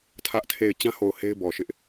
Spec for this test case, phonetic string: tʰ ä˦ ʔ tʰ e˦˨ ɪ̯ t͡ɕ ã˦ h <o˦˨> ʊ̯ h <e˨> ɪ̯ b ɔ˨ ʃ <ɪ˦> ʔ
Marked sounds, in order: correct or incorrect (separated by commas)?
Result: incorrect, incorrect, correct